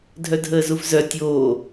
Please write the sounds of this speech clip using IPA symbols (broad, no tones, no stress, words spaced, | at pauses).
dʱœdʱəːzuvzœ tʲoː